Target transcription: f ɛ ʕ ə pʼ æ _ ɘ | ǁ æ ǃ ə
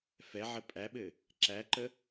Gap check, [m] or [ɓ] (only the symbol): ɓ